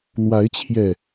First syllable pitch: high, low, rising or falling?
rising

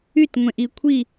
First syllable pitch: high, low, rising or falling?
falling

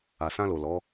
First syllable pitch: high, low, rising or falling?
low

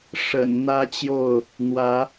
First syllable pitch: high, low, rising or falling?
low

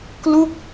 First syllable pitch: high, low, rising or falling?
falling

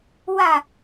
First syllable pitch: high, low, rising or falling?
falling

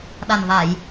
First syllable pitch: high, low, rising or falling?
low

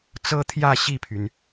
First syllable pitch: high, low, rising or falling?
high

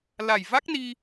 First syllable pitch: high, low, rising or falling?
low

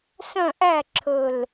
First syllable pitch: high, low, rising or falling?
falling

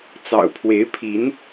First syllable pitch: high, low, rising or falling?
low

